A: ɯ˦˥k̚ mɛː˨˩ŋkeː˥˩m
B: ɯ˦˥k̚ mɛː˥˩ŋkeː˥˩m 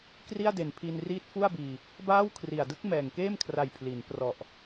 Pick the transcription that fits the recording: A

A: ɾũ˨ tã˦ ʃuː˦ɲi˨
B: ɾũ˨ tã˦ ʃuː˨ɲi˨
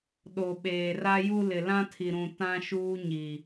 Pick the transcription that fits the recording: A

